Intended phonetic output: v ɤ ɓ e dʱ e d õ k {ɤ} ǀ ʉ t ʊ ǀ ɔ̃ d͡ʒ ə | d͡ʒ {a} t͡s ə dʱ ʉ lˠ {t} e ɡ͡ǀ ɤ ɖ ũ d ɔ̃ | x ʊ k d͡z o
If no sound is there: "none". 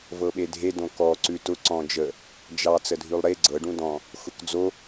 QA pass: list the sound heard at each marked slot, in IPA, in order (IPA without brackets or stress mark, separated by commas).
ɔ, ɑ, ɾ